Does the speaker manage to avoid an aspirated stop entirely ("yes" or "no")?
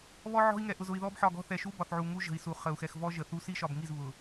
yes